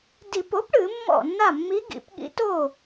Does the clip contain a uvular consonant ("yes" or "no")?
no